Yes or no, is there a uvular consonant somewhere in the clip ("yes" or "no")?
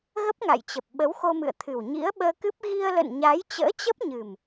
no